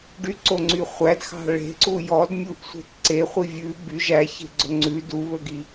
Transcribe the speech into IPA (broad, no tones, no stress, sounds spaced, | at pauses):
ɖ y ǀ o ŋ͡ǀ y χʷ æ d x ɑ̤ ɭ e̤ ǀ u j ɔ d mʲ u ʔ sʷ e̤ t ǀ e χʷ i vʲ ʉ b y ʒ æ ç e̤ ɡ͡ǀ ɵ ŋ͡ǀ ʉ d u β ɵ ɡ i